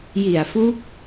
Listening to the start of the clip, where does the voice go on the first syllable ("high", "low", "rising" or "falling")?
low